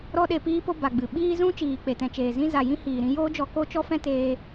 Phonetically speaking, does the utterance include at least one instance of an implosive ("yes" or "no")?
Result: yes